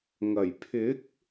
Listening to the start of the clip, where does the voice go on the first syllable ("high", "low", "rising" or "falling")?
low